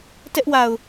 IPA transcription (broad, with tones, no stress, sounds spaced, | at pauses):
t ɛ˦ ʔ w a˨ ʊ̯